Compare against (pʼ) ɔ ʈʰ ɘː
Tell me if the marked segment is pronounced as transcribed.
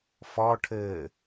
no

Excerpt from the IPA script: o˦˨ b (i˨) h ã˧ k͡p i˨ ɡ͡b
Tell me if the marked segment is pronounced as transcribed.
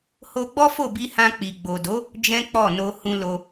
no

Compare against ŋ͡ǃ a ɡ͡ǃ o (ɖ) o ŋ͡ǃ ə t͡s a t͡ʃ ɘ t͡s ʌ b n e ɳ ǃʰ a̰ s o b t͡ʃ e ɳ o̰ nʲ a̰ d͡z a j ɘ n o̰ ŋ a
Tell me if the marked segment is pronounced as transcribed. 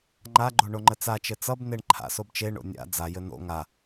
no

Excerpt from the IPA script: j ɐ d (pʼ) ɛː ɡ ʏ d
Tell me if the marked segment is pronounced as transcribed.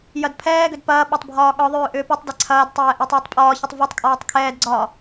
no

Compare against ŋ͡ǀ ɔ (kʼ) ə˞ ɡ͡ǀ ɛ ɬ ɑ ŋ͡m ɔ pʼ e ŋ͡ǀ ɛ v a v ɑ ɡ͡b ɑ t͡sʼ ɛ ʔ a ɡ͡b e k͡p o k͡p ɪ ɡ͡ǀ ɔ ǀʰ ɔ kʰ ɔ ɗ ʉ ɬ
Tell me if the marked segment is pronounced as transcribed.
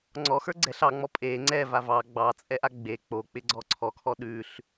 no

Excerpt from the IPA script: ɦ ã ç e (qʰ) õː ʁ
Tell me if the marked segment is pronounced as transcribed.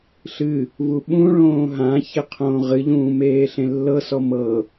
yes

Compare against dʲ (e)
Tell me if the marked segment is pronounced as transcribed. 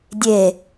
yes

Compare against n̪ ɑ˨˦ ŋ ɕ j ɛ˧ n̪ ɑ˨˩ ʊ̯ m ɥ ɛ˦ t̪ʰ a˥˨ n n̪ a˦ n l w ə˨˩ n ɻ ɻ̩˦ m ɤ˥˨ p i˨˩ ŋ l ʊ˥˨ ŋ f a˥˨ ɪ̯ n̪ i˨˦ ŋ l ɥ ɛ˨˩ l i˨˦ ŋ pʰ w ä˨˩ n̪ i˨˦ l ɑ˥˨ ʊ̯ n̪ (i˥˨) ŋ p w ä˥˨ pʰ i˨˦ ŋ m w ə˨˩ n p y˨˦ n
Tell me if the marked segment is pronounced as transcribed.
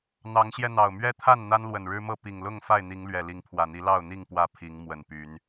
yes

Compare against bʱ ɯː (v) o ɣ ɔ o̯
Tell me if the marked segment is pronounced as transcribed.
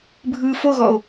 no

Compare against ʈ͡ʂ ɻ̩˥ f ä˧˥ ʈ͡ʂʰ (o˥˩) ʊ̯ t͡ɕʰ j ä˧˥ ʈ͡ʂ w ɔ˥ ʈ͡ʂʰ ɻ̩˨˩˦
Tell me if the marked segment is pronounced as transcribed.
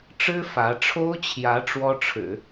no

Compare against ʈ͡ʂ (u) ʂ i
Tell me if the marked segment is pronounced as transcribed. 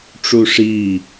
yes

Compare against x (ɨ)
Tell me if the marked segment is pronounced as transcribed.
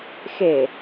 no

